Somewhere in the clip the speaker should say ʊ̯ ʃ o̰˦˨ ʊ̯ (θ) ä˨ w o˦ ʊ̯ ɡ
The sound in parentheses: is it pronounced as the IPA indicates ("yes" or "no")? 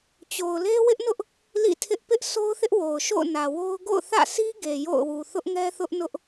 no